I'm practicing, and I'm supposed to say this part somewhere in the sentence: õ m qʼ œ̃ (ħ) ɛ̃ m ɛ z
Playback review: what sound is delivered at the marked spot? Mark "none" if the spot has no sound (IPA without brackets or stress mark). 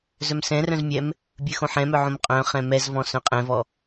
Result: χ